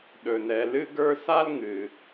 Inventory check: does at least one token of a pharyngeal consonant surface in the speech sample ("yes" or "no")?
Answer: no